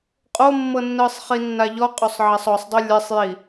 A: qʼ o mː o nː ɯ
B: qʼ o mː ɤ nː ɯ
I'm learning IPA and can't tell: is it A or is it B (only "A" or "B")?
B